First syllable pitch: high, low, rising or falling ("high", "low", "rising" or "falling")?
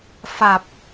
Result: low